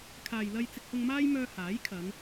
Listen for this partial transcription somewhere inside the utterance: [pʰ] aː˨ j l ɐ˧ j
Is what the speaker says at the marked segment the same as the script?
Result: no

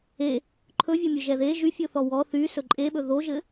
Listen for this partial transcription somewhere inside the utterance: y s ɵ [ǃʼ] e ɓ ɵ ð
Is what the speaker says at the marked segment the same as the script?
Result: yes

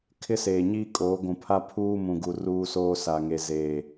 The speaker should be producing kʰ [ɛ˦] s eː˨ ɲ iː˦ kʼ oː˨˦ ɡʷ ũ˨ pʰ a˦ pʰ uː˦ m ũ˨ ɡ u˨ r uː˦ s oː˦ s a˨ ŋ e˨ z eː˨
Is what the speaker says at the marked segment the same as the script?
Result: no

